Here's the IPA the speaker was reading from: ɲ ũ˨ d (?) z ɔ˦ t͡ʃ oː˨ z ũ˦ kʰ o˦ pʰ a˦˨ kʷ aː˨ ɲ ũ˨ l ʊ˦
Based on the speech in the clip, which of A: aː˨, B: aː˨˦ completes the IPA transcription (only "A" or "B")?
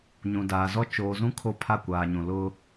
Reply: A